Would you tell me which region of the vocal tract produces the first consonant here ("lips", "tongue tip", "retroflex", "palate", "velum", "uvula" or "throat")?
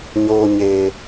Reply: palate